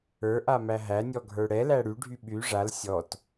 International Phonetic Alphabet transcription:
ə˞ ʔ a m æ ɦ æ nʲ ɔ ɡʱ ə˞ ɽ ɛ l æ ɽ y ɖʱ y ɓ y ʐ a l sʲ ɔ t

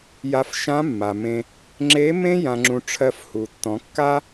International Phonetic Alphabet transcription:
j a˧ f ʃ ã˧˥ mː a˩ m ẽ˧ | ŋ͡ǁ e˧˥ m ẽ˥ j ã˧ ŋ͡ǁ ũ˧ ʈ͡ʂʰ ɜ˧ f h u˩ tː ɔ̃˩˧ kː a˥

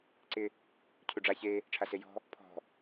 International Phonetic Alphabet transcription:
ǀ ɪ | cʰ u ɖ͡ʐ a ç e | ʈ͡ʂʰ a s e j ɔ̤ | pʰ ɔ̤

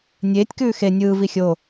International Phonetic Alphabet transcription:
nʲ eː tʲ k ʉː x e nʲ ɯː v i xʲ o

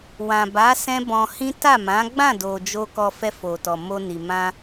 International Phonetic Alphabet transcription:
w ã˨ b a˨˦ s ɛ̃˦ b ɔ̃˧ h ĩ˦ t a˦˨ m ã˨˦ ɡ͡b ã˦˨ d o˨ d͡ʒ o˧ k ɔ˧ f ɛ˧ f o˨ t ɔ˨ m o˧ n i˨ m ã˧

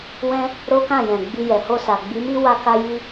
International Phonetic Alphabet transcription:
w ɛ̃˦ | ɾ o˦ k ã˦˨ j ɛ̃˨ ɡ͡b i˧ j ɛ˨ h o˧ s a˨ ɡ͡b i˨˦ m i˦ w a˦ k a˦ j i˦

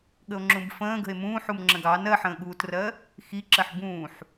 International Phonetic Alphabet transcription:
ɠ ə o̯ ŋ͡ǁ ũ b f ə̃ː ɡ ə̤ e̯ m ũː ħ u m ŋ͡ǁ ə̃ ɡ ɑ n ɜ ħ ə̃ː ɠ uː t r ɜ | x i ǁ ɜ ħ b ũː ħ

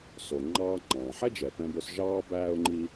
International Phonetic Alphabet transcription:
s o˩ ŋ͡ǃ ɑː˧ ŋ͡ǃ ɑ̃ː˩ ħ ɛ˥ d͡ʒ ɛ˩ p ɛ̃˧ b ø˧ s ʒ ɑː˥ b æː˥ ʊ̯ ŋ͡ǃ i˥

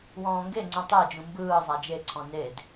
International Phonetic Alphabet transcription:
w ɔ̃ː ŋ ɡ e ŋ͡ǀ ũ tˤ e d͡ʒ ũ m b ɯː zˤ a d͡ʒ e ǀʰ ɔ̃ n e d

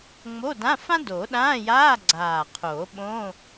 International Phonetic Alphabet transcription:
ŋ͡m o˧˥˧ d ã˧˥˧ f ã˥ d o˨˩˦ ɗ ãː˧˥˧ j aː˧˥˧ ɡ͡ǀ aː˨˩ qʰ oː˨˩˦ ɓ õ˧˥˧

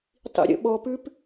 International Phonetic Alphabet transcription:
tˤ ḭ ɾʲ ə̰ ɓ ɔ p ʉ p

